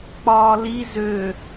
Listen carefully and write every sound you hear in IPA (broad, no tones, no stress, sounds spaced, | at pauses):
k͡p ɒː l i z ø